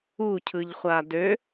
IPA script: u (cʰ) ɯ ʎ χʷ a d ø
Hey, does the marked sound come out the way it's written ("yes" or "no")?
yes